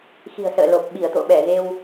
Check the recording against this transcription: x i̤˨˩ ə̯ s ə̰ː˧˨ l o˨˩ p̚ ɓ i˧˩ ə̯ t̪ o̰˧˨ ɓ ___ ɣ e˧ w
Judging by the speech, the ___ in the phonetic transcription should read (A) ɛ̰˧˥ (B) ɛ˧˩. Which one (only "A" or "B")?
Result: B